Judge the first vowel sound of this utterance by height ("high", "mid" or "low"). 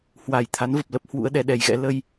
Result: low